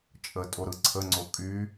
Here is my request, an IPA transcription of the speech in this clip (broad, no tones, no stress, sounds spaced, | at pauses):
t͡ʃʼ ə tʼ o ɾ ɯ ǀʰ ə ŋ͡ǀ o kʼ y